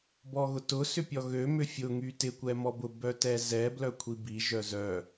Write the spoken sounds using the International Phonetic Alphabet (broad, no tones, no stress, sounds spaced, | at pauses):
b ɔ ɣ ʊ t ʊ s ʏ pʲ ɔ ɣ ø m ʏ fʲ ʊ ŋ y t ɪ kʷ ɛ m ɔ b ʊ b œ t ɛ z ɛ b l œ kʷʰ i b i ʒ œ z œ